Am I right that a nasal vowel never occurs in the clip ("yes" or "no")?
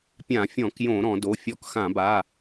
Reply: no